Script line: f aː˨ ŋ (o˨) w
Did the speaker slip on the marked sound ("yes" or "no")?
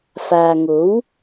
yes